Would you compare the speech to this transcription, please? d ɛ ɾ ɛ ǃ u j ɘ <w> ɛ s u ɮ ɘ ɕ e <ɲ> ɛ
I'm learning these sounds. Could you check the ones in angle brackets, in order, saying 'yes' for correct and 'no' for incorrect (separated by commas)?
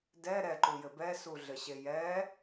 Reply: no, no